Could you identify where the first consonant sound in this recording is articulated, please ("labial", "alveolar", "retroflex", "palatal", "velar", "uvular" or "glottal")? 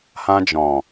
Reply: glottal